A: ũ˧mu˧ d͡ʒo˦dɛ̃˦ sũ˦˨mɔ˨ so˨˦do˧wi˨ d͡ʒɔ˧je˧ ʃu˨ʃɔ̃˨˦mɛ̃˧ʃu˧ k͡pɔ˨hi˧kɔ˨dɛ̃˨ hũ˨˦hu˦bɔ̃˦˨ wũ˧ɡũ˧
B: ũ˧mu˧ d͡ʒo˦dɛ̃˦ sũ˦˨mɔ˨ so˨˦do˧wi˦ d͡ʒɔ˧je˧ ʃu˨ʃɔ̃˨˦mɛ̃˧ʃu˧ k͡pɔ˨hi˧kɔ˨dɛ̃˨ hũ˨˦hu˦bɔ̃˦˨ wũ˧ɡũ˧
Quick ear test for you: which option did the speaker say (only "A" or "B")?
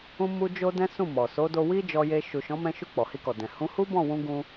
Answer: B